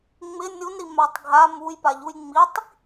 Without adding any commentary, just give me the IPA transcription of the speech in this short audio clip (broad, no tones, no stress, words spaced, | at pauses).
ŋ͡mɪ nʲunɾi matˤɡʱa mujpaʎuj ŋ͡mitˤ